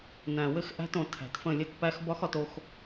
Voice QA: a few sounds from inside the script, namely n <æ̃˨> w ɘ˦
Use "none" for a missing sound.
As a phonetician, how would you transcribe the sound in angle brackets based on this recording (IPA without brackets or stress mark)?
æ̃˨